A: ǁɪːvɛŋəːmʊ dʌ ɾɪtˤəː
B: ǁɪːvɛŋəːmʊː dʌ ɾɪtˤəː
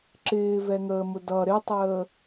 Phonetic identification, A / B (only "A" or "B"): A